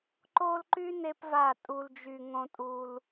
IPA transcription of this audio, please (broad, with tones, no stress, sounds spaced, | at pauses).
ǃ o˦ l ǃ y˦ n e˦ p v a˦˨ tʼ u˧ l d͡ʒ y˧ ŋ õ˧ tʼ u˧ l